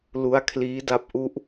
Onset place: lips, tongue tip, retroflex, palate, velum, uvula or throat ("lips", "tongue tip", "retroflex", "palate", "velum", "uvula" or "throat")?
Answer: tongue tip